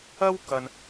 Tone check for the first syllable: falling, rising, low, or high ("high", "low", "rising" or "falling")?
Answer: high